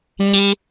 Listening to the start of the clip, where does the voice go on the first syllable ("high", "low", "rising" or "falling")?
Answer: high